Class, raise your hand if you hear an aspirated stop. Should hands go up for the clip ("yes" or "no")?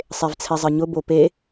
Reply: yes